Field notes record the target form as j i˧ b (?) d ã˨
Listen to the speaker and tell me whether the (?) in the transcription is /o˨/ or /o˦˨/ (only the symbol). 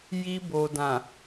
o˨